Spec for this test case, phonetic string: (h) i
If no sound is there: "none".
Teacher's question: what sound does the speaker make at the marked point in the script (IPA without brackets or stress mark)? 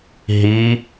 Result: ɦ